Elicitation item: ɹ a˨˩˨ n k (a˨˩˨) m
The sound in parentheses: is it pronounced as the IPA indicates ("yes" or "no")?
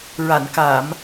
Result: yes